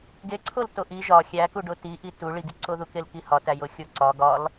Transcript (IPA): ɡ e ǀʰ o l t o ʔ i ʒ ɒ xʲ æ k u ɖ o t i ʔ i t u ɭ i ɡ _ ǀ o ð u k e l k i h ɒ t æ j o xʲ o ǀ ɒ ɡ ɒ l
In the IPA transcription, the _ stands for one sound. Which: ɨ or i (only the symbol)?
i